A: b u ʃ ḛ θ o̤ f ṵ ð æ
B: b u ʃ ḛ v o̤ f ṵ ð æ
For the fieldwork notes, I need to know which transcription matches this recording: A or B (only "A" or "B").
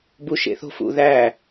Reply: A